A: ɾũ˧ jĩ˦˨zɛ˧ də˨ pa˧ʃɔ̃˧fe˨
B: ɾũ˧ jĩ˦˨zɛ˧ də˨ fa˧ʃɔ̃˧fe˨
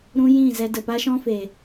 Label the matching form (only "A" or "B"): A